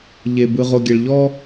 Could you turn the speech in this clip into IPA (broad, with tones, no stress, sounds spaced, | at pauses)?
ʎ e˨ b ɯ˨ ʁ o˨ ɡʲ ɛ˨ ɭ ʎ ɔ˦